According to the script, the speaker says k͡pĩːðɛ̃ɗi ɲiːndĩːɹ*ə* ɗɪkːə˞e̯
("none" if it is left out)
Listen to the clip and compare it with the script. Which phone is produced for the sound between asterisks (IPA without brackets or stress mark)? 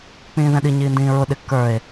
ʊ